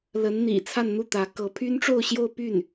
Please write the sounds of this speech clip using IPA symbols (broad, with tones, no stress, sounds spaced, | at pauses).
l ə˧˥ n n̪ ḭ˨˩ t͡sʰ a˥˧ n n̪ u˥˩ t̪ ä˧˥ k ɤ˧˥ pʰ y˥ n ʈ͡ʂ o˥˧ ʊ̯ ɕ j o˥˧ ʊ̯ p y˥˩ n